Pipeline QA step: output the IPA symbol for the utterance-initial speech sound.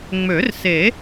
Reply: ŋ͡m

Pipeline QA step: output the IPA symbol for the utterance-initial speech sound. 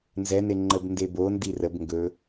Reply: n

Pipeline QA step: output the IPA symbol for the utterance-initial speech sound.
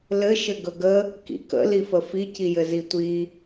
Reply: l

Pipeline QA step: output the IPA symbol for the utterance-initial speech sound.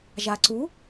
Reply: ʒ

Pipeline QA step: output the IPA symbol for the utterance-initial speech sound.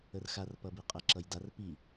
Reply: ə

